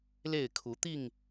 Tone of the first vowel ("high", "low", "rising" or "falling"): falling